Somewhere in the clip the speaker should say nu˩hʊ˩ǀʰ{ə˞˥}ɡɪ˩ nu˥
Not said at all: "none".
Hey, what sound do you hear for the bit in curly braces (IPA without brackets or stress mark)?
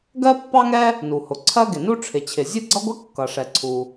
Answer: ɜ˥